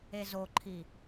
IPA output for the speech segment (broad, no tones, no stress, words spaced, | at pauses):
ezoǃʰi